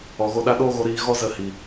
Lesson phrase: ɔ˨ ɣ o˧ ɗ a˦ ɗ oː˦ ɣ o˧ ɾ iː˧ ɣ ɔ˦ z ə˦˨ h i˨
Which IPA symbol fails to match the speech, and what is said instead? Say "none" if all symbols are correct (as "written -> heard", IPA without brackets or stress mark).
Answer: none